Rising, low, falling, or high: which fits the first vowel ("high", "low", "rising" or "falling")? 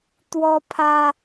high